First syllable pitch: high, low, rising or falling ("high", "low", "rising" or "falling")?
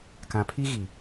low